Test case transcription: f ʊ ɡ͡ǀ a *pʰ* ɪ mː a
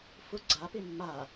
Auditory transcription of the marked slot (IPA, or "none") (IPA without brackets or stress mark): p